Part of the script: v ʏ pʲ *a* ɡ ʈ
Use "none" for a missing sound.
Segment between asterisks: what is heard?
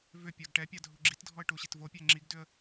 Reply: a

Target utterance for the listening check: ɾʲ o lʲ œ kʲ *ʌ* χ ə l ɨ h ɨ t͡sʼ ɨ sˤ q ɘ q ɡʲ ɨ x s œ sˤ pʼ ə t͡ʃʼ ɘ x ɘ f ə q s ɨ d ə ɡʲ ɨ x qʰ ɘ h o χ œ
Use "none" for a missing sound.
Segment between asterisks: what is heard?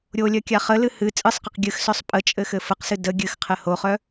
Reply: a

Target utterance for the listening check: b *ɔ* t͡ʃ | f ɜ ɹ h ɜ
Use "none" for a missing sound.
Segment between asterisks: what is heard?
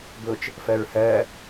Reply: ʊ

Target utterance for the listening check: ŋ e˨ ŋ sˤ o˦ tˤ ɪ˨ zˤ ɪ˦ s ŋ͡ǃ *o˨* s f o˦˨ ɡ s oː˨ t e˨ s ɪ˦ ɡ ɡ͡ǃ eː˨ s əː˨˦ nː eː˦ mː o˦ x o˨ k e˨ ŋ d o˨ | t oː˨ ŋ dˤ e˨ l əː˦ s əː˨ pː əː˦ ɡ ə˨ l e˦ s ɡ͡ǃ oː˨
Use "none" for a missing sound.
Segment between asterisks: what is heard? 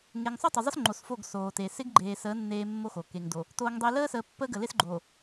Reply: o˨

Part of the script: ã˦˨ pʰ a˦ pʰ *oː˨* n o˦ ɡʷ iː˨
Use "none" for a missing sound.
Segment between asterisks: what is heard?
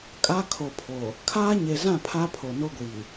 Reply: o˨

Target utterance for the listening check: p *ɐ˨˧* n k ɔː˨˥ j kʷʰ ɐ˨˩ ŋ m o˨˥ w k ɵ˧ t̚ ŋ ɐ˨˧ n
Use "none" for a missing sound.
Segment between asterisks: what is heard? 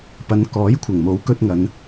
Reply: ɐ˨˧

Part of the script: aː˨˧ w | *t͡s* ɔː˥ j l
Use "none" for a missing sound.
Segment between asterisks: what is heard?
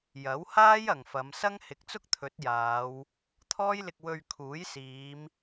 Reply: t̪ʰ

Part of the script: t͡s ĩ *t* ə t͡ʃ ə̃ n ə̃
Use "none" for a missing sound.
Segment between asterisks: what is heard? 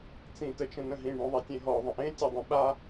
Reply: t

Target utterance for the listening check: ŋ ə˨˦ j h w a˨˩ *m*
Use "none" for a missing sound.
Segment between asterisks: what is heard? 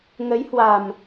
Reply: m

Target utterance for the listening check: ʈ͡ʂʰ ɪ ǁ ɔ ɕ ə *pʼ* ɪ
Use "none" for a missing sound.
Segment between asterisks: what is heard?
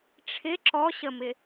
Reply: m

